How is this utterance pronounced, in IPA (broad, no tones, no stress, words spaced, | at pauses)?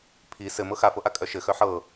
pʰi sɘ mɤxafɤʔa kʼœʃɘ xœħɤ